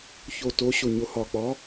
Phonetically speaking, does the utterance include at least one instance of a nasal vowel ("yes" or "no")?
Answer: no